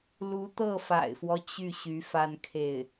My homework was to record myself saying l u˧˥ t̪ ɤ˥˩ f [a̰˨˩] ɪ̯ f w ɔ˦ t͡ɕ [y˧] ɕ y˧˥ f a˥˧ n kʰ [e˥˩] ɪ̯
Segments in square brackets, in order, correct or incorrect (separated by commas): correct, incorrect, correct